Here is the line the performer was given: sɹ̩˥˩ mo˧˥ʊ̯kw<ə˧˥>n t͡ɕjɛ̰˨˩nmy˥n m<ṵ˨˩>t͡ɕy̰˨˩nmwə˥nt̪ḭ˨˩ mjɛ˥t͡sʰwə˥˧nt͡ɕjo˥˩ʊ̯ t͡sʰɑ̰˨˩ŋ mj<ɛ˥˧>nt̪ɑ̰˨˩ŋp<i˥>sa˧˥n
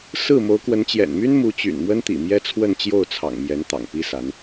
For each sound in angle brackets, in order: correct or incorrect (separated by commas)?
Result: correct, incorrect, incorrect, correct